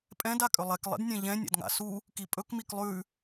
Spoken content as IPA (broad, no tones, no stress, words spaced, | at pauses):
pʼɛ̃d akʼʏlˠɛk lˠḛdnʲɛ̃ʎɛ̃ nʲa̰dŋa̰su | kipʼɵk miklˠʉ